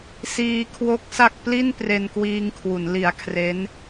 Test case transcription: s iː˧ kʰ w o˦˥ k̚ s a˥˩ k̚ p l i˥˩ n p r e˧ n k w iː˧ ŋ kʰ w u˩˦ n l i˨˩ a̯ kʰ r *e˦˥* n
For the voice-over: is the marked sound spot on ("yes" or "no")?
yes